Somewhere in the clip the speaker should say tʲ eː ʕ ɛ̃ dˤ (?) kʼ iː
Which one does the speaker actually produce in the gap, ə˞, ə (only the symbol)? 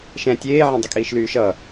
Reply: ə